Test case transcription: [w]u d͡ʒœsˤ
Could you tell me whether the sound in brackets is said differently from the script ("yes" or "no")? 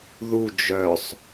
yes